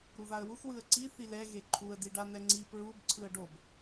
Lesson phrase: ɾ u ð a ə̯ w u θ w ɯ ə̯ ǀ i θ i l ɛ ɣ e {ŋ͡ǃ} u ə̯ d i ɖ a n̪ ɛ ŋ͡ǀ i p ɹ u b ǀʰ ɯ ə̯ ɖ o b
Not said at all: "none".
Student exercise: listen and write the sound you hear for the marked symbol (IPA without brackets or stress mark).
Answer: ǃʰ